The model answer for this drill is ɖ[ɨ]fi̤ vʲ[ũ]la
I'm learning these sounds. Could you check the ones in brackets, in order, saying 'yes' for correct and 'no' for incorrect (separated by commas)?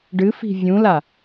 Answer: yes, yes